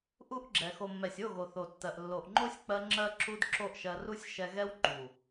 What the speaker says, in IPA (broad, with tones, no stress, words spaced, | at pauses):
ʔu˦ʔɡ͡ǁɛ˨ xo˨mːɛ˨sʲo˦˨ɣo˨ θo˨tːɜ˨ʔ lːo˨ʔŋ͡ǃo˦sʲk͡pɜ˧ ŋ͡ǁɜ˦ǁu˦d ǁo˦ʔʃɜ˧ ru˦sʲʃɛ˧ɣɛ˦w ŋ͡ǃu˨